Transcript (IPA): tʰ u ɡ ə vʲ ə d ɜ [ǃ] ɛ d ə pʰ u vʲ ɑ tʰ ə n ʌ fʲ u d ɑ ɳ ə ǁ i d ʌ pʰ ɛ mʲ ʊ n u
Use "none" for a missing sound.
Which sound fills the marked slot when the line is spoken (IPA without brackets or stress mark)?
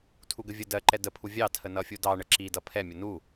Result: ǃ